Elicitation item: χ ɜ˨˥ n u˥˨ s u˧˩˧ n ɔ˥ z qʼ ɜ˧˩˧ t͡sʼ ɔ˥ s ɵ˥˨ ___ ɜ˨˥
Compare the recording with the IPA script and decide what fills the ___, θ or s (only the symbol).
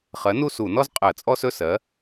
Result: s